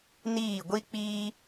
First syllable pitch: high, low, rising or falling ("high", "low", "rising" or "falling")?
falling